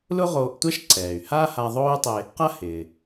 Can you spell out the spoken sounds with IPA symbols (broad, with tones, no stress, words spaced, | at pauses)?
lʊ˥ ʁoː˧ʔtʷa˥ʃǀɛː˩y̯haː˥ ha˧ðˤoː˥y̯tˤe˧ | qa˥hɪː˩